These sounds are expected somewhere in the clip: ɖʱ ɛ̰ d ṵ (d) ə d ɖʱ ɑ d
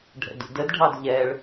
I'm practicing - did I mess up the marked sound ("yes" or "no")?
no